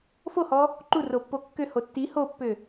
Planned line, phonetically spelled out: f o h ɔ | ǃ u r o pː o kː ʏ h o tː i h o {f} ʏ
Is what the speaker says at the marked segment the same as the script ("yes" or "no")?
no